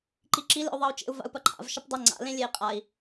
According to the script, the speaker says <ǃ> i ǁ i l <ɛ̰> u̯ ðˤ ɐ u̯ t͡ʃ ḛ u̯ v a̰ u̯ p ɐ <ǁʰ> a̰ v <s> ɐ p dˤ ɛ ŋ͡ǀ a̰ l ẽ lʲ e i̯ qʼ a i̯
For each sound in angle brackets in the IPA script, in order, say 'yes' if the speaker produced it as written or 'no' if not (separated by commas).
yes, no, no, no